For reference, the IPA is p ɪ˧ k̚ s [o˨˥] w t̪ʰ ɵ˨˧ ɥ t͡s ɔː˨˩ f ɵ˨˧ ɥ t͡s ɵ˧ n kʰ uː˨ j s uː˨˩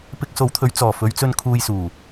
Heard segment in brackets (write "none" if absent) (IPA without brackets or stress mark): o˨˧